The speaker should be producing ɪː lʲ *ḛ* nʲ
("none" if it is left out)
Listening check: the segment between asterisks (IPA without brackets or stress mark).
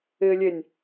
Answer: e